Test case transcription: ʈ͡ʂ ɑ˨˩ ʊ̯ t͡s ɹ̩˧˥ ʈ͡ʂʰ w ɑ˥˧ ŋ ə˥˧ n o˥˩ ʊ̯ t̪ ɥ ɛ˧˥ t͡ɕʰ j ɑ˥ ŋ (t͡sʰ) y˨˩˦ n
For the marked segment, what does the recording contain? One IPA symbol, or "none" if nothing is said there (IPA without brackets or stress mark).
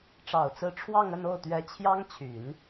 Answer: t͡ɕʰ